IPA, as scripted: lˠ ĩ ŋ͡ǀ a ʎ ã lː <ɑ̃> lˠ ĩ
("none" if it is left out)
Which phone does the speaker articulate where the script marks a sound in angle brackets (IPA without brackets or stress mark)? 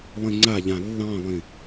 ɑ̃